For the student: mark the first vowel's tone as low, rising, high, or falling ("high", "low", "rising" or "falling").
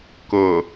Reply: low